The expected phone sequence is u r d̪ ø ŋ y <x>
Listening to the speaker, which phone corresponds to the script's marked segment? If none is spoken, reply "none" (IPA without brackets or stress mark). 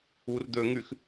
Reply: x